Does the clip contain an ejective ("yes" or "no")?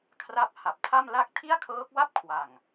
no